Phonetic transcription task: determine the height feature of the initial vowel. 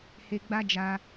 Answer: mid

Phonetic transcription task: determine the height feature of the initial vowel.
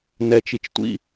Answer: mid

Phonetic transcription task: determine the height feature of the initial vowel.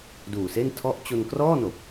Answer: high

